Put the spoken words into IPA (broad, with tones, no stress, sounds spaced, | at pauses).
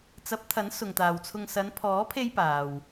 t͡s ɐ˨˥ p̚ t̪ʰ ɐ˨˥ n s ʊ˨ ŋ t̪ aː˨ w t͡sʰ ʊ˧ ŋ s ɐ˨˧ n pʰ ɔː˨˥ pʰ e˧ j p aː˨ w